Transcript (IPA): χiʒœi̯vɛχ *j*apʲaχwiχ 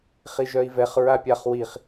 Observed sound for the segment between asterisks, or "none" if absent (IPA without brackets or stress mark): ɹ